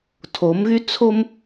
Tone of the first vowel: rising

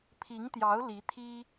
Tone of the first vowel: rising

